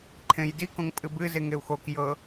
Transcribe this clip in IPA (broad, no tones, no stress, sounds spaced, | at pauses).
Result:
ǃʰ ẽ j d i k õ ŋ pʼ ɨ b ɨ z e ŋ e u̯ x o k j ɤ